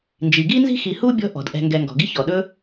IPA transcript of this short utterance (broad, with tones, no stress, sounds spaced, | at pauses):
n d͡ʒ i˩ ɡ i˥ n z i̤˥ x i˨ h u˥ bʲ ɔ̤˦ ʔ ɔ̤˩ d ʔ ɛ̤˨ ŋ ɡ ɛ˨ ŋ ɡ ɔ̤˩ ɡ i˦ ç ɔ˩ ɗ ɵ˦